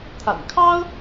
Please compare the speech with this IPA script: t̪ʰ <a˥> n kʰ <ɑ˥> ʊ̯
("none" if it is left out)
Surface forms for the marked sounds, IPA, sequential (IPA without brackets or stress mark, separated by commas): a̰˨˩, ɑ˥